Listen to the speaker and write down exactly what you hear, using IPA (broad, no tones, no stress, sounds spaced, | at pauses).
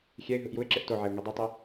xʲ ɛ ɪ̯ ɦ ɯ ʔ j u ɪ̯ ǁ e ʔ t o ʕ e ʊ̯ ŋ i dˤ i tˤ i